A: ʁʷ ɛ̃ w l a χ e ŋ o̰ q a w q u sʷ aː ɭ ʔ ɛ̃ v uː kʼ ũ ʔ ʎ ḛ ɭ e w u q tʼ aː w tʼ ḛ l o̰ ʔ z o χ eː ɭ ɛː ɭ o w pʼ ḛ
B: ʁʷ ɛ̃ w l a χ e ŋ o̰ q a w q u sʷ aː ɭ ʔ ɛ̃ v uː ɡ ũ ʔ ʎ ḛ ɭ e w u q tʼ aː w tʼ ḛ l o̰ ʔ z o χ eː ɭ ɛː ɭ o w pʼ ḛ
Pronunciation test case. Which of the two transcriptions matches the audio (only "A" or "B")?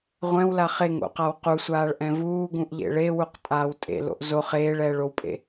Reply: B